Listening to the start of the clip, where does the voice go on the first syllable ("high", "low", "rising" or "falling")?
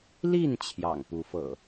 falling